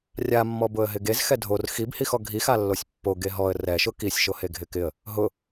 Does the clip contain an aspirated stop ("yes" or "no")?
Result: no